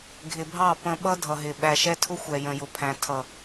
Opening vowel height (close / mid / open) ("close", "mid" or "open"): close